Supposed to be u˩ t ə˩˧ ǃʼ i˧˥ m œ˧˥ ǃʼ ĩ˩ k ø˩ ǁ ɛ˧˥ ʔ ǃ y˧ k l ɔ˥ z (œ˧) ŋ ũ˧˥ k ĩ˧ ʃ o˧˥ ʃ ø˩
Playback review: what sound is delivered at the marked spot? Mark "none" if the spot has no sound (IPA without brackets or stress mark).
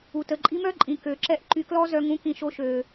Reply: œ˧